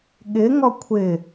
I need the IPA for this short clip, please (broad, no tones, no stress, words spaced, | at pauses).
ɠɪ ŋɔkʷʰɪ